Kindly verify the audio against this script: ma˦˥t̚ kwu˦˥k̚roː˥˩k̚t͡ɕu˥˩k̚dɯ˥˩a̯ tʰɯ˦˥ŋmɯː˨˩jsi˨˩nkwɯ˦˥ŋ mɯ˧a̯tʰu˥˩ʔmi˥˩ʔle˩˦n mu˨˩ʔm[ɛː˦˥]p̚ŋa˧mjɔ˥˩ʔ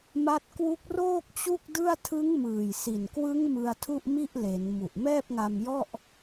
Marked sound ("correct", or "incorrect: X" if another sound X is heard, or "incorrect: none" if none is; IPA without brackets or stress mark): incorrect: ɛː˥˩